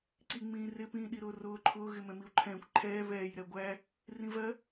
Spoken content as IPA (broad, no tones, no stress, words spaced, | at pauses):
ǀiŋ͡mĩːrɪ pĩːɗiɾʊːrʊː ǃʰʊː ɣɪmɛ̃miu̯ǃʰɛ̃ːkʷ ǃʰɛː βɛːj ɾɛɡʷæ | rĩvɜ